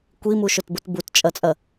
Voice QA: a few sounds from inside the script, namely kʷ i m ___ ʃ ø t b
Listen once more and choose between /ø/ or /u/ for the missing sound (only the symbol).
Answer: u